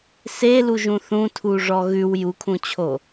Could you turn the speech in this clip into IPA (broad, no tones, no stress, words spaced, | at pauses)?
seluʒũ θũtʰu ʐɔɣʉw jukʰũt͡ɕʰo